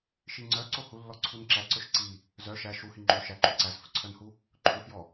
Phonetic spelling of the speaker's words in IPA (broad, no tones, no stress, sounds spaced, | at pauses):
ʃ i ŋ͡ǀ œ ǀ o h u lː ɔ ǀʰ u n ǁ æ ǀ ɵ ʃ ǀ i | z œ ʃ æ ʃ u h i ŋ͡ǃ o ʃ æ ǃ ʉ ǀ æ z f ɵ ǀʰ œ n h u | ǃʰ ɵ f j ɔ